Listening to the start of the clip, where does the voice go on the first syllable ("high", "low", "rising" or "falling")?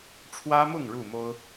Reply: high